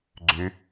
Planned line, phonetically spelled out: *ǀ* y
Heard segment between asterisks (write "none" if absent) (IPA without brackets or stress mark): ɡ͡ǀ